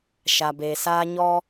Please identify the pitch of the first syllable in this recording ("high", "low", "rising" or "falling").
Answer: low